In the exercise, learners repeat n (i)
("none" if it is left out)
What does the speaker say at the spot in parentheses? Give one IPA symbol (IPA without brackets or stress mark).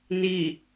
i